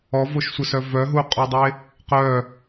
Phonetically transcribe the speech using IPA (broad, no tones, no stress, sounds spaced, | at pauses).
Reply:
ɔ v o ʃ sʷ ə s œ v œ ɦ u qʼ o dˤ e | q œ